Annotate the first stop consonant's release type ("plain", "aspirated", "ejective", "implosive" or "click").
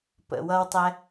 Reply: plain